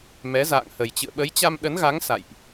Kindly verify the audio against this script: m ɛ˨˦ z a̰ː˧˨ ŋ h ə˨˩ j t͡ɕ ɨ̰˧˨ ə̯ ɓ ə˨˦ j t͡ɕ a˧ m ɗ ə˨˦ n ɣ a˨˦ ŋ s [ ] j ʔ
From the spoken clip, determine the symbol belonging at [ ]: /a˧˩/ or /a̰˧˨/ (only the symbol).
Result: a̰˧˨